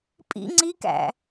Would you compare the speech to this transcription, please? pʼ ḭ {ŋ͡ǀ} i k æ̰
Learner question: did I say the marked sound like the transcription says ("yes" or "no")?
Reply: yes